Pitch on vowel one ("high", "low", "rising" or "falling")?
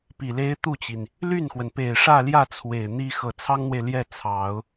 low